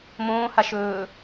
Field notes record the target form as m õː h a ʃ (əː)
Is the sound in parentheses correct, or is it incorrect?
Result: incorrect